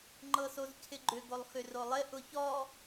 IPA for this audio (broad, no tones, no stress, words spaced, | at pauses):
ŋ͡ǃɤsozcʰɪɡ͡ǃʏ ɡolˠxʏrolˠɪ ʔʊçɔ